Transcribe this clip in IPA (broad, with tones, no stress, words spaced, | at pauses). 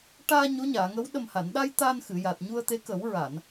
ʈaː˧ ɲo˧˥ɲaː˨˩˨ŋə˧˥w ɗə˨˩mha˨˩˨nɗa˧j t̪a˧nxɨ˨˩˨ja˨˩t̚ ɲu˧ə̯t̪e˧˥kə˨˩˦w ɹa˨˩˨n